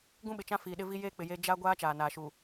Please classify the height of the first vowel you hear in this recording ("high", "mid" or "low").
high